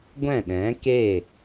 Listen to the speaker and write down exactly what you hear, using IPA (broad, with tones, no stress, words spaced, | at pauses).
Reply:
ɡʷɛ̃˦˨ɗɛ̃˨˦ke˦˨